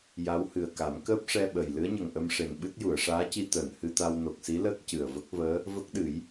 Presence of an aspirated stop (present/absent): absent